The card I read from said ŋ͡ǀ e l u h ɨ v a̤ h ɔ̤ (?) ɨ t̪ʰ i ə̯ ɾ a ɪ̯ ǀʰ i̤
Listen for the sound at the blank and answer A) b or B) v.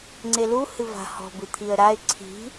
A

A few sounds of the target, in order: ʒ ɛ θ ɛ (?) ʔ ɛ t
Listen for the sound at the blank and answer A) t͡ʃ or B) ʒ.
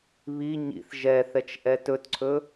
A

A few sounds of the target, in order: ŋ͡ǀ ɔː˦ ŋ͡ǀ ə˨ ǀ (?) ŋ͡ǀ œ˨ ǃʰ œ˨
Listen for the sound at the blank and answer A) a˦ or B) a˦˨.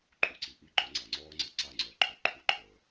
B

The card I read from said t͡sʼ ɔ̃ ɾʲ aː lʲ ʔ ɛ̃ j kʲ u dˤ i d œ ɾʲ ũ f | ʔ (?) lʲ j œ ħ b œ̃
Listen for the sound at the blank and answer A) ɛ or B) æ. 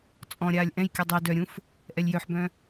A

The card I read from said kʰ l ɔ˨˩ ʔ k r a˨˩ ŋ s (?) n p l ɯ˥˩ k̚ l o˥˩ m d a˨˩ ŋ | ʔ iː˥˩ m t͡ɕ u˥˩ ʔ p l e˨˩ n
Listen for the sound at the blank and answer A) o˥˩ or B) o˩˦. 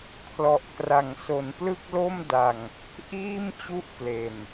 B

